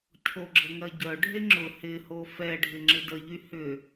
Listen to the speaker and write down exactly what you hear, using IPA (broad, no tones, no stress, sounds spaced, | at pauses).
cʰ o ɡ͡ǁ ə ŋ ɐ ɟ œ ɖʱ e ŋ͡ǁ ʊ h ɪ h o f ɛ ɖʱ ɪ ŋ͡ǁ ɪ d ə ʎ y h ʏ